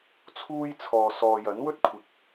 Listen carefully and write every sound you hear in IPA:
t͡sʰuː˥jt͡sʰɔː˨ sɔː˨jɐ˨˥nwɵ˥t̚kʷʰɪ˨˥k̚

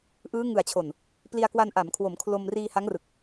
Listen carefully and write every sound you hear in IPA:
ʔɯː˦˥ ŋɯ˨˩a̯t͡ɕʰo˨˩n | pli˧a̯kwa˧nʔa˩˦mkʰwo˩˦m kʰlo˧m riː˧ha˦˥ŋrɯ˨˩k̚

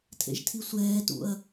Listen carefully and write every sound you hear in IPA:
tʰḛʒtʰisʷɛːtṵɐ̯

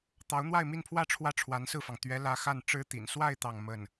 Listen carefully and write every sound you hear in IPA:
t̪ɑ˧˥ʊ̯n̪wa˥˧ɪ̯mi˥˧npʰwä˥˧ ʈ͡ʂʰwä˥˩ʈ͡ʂʰwa˧˥nsɹ̩˥˩fɑ˩ŋ t̪ɥɛ˧˥lä˧˥ xa˥˩n ʈ͡ʂɻ̩˥ t̪ḭ˨˩n swa˥˧ɪ̯ t̪ɑ˥˧ŋmə˥˩n

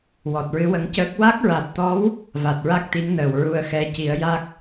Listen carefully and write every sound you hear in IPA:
wɔ˨˩t̚ɹɨ˧˥wə˧˥ŋcəː˦˥k̚ wa˦˥k̚ɹa˨˩t̚t̪ɔ˧˥w | va˨˩t̚ɹa˦˥k̚t̪i˧˥ŋ nəː˨˩wɹu˧ə̯xɛ˧ ci˨˩˦ə̯ja˦˥k̚

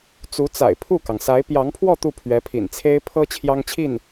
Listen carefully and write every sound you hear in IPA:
t͡su˧˥t͡sa̰˨˩ɪ̯ pʰu˥˩kɑ˩ŋsa˧˥ɪ̯ pjɑ˧˥ŋpʰwɔ˥˧ t̪u˥˩pʰɥɛ˧˥pʰḭ˨˩n t͡sʰe˥ɪ̯pʰɤ˥ t͡ɕʰjɑ˥ŋt͡ɕʰi˥˩n

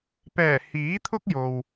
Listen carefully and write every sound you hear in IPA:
pɛː˨˩ hiː˨˥t̪ʰʊ˥k̚jo˨w

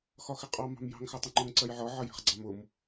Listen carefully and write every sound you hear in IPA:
xɒxɪqʼɑ mɑ̤mjɑ̤ŋ xætˤʌŋ͡ǃʊŋ ǀɜjʕɒ ʕʌjæ̤χɡ͡ǀɑmʊm

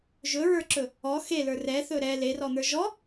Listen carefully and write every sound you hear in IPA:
ʒɵɹə˞ǁɵ | ɔ xelə˞r ɛθɵ ɾɛ lerɔn̪ə˞ ʒɔ

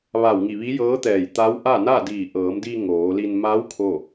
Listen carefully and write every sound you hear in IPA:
ʋa˧˩wŋi˧˩ ʋi˧˥jɤː˧˥t̪ɛː˧˩j t̪a˧˥w ʔa˥˨na˥˨diː˧˩ ʔɤː˩˧mdi˧ ŋoː˩˧li˧n ma˧˥w kʰo˥˨

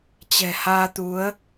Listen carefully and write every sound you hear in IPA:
t͡ɕɛ̤˨˩haː˧t̪u˨˦ə̯

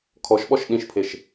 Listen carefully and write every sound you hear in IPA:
kʰɔʃɓɔʃ ɗĩʃpʰeʃ

